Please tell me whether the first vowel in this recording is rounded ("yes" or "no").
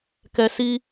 no